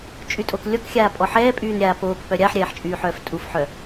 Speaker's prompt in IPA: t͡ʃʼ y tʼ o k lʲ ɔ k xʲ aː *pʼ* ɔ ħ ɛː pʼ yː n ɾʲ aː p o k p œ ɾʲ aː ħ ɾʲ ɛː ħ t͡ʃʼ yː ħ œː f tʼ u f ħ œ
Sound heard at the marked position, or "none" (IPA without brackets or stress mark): pʼ